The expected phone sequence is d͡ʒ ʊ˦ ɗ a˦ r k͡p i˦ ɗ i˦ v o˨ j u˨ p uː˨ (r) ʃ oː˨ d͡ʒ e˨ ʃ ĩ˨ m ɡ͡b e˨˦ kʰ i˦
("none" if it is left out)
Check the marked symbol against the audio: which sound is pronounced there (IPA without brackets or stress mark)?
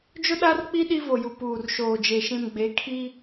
r